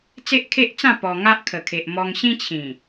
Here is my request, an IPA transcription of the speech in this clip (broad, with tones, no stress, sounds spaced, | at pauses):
t͡s e˦ ʔ kʰ e˦ ʔ t͡s ã˥˧ p ɔ˧ ŋ a˦ ʔ kʰ ə˨˩ kʰ e˨ ʔ m ɔ˧ ŋ ɕ ĩ˦ t͡ɕʰ ĩ˨˩